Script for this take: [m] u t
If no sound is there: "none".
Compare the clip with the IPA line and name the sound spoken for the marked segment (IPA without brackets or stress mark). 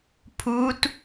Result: pʰ